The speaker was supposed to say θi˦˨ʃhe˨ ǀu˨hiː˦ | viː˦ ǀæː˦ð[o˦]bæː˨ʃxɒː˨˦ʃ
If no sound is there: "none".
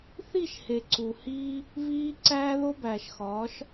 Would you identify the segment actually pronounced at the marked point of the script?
o˦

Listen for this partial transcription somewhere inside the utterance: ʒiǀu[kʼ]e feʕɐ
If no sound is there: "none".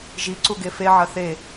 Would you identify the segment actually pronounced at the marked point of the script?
ɡ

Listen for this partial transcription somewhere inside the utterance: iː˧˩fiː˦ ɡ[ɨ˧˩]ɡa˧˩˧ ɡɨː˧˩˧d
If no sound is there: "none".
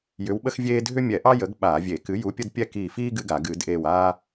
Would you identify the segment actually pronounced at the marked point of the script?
ɨ˦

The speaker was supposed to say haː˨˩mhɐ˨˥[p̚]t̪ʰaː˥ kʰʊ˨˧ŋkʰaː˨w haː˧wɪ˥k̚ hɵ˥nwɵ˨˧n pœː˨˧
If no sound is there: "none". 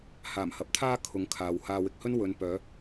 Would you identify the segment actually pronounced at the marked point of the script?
p̚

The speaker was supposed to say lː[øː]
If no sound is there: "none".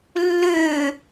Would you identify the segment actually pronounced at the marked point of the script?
ø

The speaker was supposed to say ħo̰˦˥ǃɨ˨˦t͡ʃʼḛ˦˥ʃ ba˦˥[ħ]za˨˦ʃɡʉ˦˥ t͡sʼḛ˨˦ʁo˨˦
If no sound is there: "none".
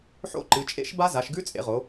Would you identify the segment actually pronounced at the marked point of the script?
none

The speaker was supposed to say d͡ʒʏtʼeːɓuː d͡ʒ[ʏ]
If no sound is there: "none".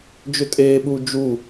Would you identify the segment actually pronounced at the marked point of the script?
u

